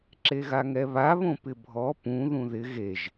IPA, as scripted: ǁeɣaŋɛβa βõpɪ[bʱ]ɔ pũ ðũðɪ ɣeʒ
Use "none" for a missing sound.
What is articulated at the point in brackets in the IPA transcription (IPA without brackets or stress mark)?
bʱ